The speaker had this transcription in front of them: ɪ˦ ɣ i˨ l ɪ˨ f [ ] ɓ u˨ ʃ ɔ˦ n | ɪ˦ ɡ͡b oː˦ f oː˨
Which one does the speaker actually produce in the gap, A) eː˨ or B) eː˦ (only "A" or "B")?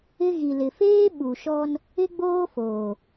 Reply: B